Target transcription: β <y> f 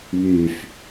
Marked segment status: correct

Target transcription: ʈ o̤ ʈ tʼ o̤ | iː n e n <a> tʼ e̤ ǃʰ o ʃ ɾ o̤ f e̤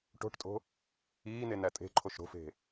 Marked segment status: incorrect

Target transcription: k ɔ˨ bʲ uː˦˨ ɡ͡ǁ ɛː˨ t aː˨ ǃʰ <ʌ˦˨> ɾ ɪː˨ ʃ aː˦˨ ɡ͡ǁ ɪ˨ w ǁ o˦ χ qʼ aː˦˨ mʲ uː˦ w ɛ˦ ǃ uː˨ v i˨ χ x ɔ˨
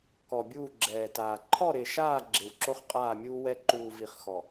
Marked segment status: incorrect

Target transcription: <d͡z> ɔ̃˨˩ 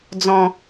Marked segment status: correct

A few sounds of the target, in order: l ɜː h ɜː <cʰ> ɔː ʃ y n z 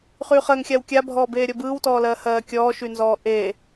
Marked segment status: incorrect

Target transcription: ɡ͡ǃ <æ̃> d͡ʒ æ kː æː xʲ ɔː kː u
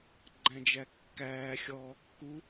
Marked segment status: correct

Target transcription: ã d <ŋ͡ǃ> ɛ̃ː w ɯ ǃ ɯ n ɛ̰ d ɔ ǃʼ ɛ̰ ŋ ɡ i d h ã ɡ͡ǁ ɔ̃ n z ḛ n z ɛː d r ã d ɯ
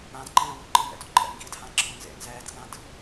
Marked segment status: incorrect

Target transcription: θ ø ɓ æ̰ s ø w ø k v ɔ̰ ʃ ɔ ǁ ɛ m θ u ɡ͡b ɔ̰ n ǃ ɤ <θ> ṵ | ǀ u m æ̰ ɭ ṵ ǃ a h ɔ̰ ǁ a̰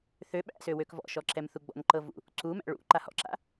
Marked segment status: incorrect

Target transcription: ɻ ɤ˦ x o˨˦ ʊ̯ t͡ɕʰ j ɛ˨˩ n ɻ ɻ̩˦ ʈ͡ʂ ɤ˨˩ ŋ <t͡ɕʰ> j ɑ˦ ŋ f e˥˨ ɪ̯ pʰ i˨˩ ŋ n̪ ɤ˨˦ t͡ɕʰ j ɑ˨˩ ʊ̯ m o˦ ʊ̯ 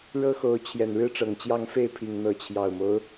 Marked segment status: incorrect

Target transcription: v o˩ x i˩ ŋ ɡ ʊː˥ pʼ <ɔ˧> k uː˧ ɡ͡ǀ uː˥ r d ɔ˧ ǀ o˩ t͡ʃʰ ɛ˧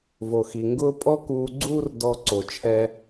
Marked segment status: incorrect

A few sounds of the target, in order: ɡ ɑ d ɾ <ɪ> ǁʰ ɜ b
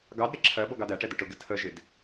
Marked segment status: correct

